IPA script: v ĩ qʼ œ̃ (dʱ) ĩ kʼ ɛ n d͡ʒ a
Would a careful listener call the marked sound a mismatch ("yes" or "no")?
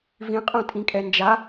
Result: yes